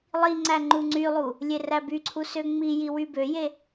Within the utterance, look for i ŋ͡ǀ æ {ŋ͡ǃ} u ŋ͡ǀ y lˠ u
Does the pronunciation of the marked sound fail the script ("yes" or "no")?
no